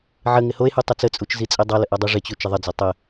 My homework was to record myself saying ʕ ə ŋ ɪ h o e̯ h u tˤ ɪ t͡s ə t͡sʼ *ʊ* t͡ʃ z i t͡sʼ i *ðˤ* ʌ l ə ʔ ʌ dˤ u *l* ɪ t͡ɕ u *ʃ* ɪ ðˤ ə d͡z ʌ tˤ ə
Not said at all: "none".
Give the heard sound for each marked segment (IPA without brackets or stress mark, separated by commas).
u, dˤ, ʐ, t͡ʃ